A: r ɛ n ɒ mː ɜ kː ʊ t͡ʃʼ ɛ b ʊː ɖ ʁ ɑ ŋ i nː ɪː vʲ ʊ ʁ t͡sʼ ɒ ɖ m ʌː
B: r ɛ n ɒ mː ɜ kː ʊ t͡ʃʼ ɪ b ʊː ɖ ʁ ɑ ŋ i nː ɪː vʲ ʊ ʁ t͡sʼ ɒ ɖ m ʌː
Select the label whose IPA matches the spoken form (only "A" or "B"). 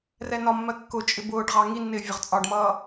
B